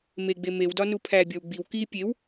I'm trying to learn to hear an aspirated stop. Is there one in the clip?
yes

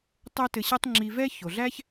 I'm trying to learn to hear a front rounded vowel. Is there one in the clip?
no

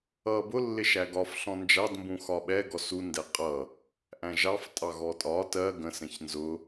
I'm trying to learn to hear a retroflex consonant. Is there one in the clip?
no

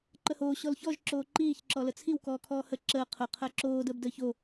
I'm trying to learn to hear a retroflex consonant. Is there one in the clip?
no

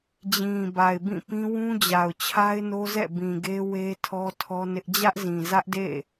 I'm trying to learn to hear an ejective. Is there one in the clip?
no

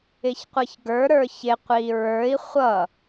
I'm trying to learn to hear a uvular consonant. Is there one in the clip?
yes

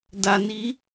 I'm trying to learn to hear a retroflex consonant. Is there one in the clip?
no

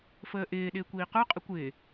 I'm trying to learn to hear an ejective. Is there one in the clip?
yes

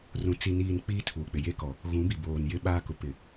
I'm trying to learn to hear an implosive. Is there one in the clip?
yes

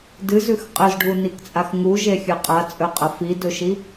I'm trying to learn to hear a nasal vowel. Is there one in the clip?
no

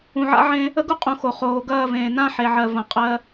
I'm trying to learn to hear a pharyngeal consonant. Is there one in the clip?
yes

